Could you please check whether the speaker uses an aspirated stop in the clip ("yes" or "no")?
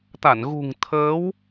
yes